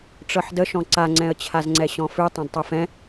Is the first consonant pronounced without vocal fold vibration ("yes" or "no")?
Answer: yes